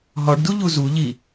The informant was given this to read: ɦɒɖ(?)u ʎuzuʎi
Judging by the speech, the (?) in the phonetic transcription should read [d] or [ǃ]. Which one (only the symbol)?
d